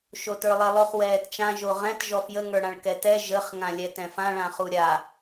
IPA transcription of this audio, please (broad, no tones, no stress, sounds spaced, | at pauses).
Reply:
ʃ o t ə˞ lˠ ɛ lˠ o χ w ɛː t t͡ʃ ã ʒ o ʁ ɛ̃ t ʒ ɔ f j ə ŋ ə˞ ɽ ã ɭ k ɛ t ɛ ʒ ə χ ŋ ã lʲ ɛ t ɛ̃ f ã ɭ ã χ u ɾʲ a